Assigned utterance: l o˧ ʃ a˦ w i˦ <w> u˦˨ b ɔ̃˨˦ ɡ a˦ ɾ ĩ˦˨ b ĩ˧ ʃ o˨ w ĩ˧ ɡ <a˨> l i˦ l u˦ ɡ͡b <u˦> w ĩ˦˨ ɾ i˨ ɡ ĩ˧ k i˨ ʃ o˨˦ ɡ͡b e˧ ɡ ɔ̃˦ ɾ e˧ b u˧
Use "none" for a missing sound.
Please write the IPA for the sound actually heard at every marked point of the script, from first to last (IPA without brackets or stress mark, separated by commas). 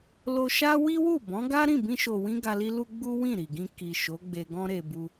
w, a˧, u˦